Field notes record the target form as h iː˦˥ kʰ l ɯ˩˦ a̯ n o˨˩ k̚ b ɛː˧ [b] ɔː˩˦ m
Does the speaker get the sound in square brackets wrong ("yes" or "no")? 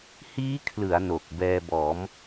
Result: no